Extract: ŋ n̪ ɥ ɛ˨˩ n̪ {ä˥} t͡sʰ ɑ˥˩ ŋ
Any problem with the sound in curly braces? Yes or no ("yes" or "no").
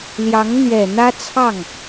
no